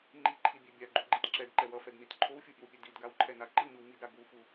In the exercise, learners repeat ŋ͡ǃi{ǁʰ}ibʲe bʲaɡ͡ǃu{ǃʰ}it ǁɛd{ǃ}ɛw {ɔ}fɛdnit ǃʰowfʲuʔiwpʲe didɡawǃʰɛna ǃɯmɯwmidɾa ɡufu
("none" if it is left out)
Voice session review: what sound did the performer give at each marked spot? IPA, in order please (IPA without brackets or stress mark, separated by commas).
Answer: ǃʰ, ɡ͡ǃ, ǃ, ʌ